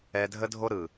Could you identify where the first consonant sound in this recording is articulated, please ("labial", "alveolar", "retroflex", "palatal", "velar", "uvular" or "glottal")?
alveolar